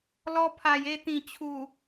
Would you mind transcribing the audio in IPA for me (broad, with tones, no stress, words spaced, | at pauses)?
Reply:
lɔ˧pʰa˨˩j e˧t̪ĩ˨˩t͡ɕʰu˨˩